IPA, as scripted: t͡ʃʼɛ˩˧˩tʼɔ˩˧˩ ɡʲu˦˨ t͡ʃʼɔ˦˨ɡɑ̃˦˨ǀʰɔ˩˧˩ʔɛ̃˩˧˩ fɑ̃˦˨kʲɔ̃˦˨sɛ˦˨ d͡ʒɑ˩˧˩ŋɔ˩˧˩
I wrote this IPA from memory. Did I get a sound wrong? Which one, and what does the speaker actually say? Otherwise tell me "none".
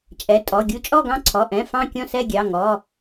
d͡ʒ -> ɡʲ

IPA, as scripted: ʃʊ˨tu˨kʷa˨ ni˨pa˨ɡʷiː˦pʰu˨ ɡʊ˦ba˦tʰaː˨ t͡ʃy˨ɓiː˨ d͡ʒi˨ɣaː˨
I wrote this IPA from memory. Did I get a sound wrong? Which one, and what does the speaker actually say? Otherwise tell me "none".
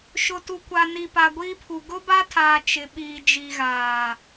y˨ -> ɪ˨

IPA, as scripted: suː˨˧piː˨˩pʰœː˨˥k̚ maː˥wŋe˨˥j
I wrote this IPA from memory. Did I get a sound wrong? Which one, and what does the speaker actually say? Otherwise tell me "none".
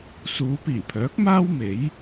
ŋ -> m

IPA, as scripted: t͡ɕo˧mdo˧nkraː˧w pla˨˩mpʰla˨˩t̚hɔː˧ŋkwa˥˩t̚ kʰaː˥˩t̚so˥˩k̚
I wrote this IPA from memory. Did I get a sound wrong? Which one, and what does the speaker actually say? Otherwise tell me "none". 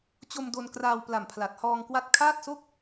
none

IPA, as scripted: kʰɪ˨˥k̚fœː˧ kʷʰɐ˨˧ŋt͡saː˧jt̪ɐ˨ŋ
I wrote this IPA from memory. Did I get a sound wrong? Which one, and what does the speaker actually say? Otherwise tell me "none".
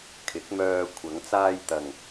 f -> m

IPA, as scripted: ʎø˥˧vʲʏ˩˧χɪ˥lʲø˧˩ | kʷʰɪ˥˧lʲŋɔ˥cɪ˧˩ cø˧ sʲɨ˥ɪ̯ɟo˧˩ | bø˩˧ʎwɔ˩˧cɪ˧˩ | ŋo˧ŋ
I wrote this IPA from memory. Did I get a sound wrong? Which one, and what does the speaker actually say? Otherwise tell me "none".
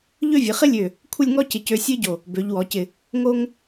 ʏ˩˧ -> ɨ˩˧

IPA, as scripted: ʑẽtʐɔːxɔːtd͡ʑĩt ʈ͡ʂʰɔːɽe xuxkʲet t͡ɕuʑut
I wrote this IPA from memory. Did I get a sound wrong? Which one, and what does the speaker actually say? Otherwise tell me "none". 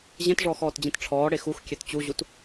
none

